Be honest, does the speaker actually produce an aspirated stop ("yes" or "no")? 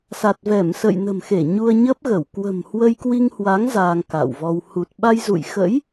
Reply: no